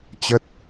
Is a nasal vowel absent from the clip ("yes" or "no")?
yes